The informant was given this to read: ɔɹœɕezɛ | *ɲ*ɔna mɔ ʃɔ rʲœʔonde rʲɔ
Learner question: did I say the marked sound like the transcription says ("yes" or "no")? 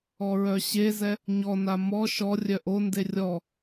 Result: yes